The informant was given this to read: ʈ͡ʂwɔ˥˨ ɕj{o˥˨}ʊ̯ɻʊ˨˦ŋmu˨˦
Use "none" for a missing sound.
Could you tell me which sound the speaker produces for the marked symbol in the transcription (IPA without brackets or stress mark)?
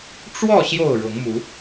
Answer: o˥˨